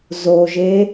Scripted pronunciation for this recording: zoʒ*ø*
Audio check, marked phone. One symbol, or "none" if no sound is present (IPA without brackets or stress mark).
e